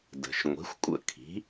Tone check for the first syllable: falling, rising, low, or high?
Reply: low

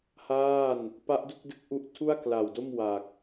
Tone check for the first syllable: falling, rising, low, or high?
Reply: falling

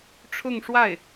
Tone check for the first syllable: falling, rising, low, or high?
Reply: falling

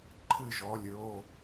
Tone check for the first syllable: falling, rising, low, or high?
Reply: falling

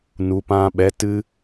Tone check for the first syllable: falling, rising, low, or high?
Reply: low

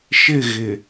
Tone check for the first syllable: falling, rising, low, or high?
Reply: falling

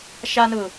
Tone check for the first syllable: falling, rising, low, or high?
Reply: high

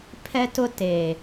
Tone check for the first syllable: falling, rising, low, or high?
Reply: high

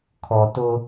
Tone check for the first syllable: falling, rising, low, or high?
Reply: low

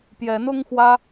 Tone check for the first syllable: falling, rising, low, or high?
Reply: rising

